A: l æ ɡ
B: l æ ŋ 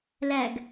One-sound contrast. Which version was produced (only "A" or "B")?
A